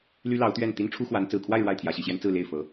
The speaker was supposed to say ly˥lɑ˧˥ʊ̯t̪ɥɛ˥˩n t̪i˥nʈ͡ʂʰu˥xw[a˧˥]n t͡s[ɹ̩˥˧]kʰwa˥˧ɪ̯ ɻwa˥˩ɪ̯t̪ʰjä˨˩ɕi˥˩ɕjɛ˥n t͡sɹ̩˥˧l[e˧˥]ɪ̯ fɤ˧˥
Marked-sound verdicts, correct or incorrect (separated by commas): correct, incorrect, incorrect